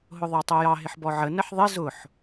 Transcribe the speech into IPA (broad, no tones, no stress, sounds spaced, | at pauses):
ɦ ʊ ðˤ ɑ tˤ ʊ j ɑ ɦ ɪ ħ b ɔ ʕ ə n ə ħ ðˤ ɪ z ʊ ħ